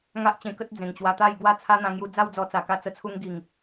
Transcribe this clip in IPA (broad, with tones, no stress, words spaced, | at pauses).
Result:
ŋa˦ʔt͡ɕẽ˧kə˦t̚ d͡zẽ˨˩ŋt͡ɕwa˧t̪a˥˧j ɡwa˥˧t͡sʰa˦n̪ã˧ŋju˧ d͡za˥˧wd͡zɔ˧ t͡sa˨˩ka˧t͡sə˧ t͡sʰu˧ŋɡi˨˩ŋ